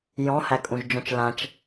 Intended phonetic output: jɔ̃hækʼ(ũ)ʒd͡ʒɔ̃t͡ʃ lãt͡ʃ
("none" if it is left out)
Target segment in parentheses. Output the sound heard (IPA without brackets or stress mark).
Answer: ũ